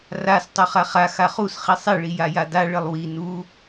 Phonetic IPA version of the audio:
r a s tˤ u χ a χ a x a χ u s χ i sˤ i ɭ i j a j a d a ɭ ɘ lˠ w i n u

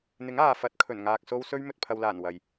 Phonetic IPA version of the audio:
n̪ ɪ˨˥ ŋ aː˨ f ɐ˨˥ t̚ kʰ ɵ˨˩ n ŋ aː˨ k̚ s o˧ w s ɵ˥ ɥ m ɵ˨ t̚ pʰ ɐ˨ w l aː˨˩ n w ɐ˨ j

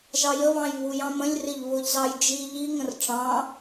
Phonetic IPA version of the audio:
ʒ ɑ j ə β ɑ̃ j β u j ɑ̃ m ə̃ lʲ r ɪ ʎ β ʊ ʎ z ɑ j d͡ʒ i ʎ i ŋ ə̃ r ʈ͡ʂ ɑ̃

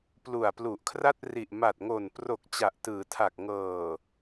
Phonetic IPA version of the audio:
p l u˨˩ a̯ p l u˨˩ ʔ kʰ r a˥˩ t̚ r i˨˩ ʔ m a˨˩ t̚ ŋ o˨˩ n p r o˨˩ k̚ t͡ɕ a˨˩ ʔ t ɯː˩˦ tʰ a˨˩ k̚ ŋ ɤː˨˩

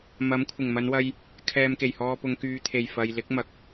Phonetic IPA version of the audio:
m ɐ˨˥ m kʷʰ ɪ˨˩ ŋ m ɐ˨˧ n w ɐ˧ j | kʰ ɛː˧ m k e˨˩ j h ɔː˧ p ʊ˨˧ ŋ k yː˨˧ t̪ʰ e˨˩ j f ɐ˨ j l ɪ˨˥ k̚ m ɐ˨ k̚

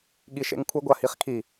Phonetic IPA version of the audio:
ɠ i ʃ ḛ ŋ kʷʰ ɨ ɡʷ a h i χ kʰ i

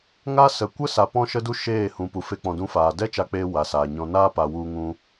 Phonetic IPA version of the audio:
ŋ a˦ s ə˨ kʷ ə˦ s a˧ p ɔ̃˦ ʃ ə˦ d u˦ ʃ eː˦˨ h ũ˨ p u˨ f e˧ k͡p ɔ̃˨ d ũ˨˦ f aː˨ d ɛ˦ t͡ʃ a˧ k͡p eː˧ w a˨ s aː˨ ɲ ɔ̃˧ n aː˦ p a˨ w u˧ ŋ ũ˧

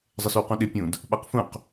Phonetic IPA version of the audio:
zˤ ə s y w q ũ ɗ ɪ pʲ ũ d | ɓ a q f ũ q

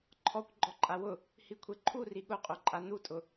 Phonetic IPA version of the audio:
ǃʰ ɔ kʷ ɡ͡ǃ ɔ ǃʼ a w ʊ | h i kʷʰ e ǃʰ u r i ɠ ʊ qʼ o ǃʼ a n u tʼ ʊ

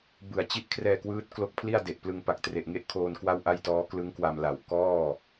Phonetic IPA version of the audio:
b ɯ˨˩ a̯ t͡ɕ i˥˩ ʔ kʰ r ɛː˧ k w ɯː˦˥ t̚ k l o˦˥ k̚ pʰ l i˥˩ a̯ d e˨˩ ʔ p l ɯ˧ ŋ p a˨˩ k̚ t r e˨˩ ʔ ŋ e˥˩ ʔ kʰ oː˧ n k w a˥˩ w ʔ a˥˩ j t ɔː˦˥ k l ɯ˦˥ ŋ k w a˧ m l a˨˩ w k ɔː˥˩

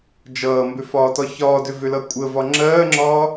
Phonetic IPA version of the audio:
d͡ʒ ʌː m b ʏ f ɒː t ɒ ç ɒː d ʏ v ʏ l ʌ kʷʼ ə v ɒ ŋ͡ǁ ɜː ŋ͡ǁ ɒː

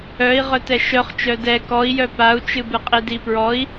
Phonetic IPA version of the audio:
œ i̯ ʁ œ t ɛ ʃ œ χ t͡ʃ œ d ɛ k ɔ i̯ j œ p a u̯ t͡ʃ ɨ b ɨ qʼ i d i p ɹ ɔ i̯

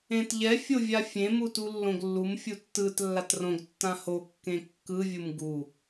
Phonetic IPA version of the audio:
ẽ t ʎ ɛ fʲ o vʲ a fʲ ẽ m u t u lː õ ɡ lː u m fʲ u tː ɯ t lː a t r õ ɡ tː ã h o kː ẽ kː ɯ vʲ u m ɡ u

